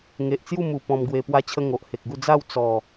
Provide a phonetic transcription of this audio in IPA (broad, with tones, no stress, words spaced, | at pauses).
ŋe˨ʔt͡sju˥˧mu˨˩ pɔ̃˧mɡwe˧ pwa˧t͡ɕʰə˧ ŋo˨ʔhe˨k̚ɡu˥˧ d͡za˥˧w t͡sɔ˨˩